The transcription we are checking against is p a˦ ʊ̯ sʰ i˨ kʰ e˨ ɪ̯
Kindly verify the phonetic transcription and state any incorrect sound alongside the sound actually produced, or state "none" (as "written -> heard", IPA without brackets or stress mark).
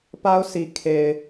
none